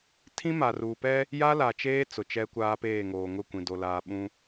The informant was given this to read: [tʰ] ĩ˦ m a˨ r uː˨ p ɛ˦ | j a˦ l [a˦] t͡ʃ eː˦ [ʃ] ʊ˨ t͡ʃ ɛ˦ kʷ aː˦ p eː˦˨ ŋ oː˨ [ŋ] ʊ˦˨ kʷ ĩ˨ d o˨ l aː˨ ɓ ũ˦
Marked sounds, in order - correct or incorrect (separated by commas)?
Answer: correct, incorrect, incorrect, correct